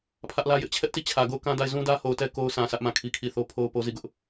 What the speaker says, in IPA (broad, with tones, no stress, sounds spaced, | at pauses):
pʰ ä˦ ʔ l ä˦ j ɪ˦ ʔ t͡ɕʰ ɛ˦ ʔ t i˦˨ t͡ɕʰ ä˨ ɡ o˦˨ ʊ̯ k ã˦ d a˦˨ ɪ̯ z ũ˦ d ä˦ h o˨ ʊ̯ t ɛ˦ k o˦ ʊ̯ s ã˨ s ä˦ ʔ m ã˦˨ kʰ i˦ kʰ i˦˨ θ o˦ pʰ o˦ ʊ̯ p o˦ z i˦˨ ɡ ʊ˦ ʔ